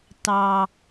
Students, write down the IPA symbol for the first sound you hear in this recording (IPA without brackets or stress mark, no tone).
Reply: t